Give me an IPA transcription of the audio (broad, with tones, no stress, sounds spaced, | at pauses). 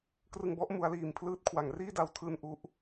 k r ɯ˧ ŋ b ɔ˥˩ ʔ m u˦˥ a̯ l iː˧ m pʰ l ɯː˥˩ t̚ kʰ w a˩˦ ŋ r iː˥˩ d a˧ w tʰ ɯː˧ n ʔ u˦˥ ʔ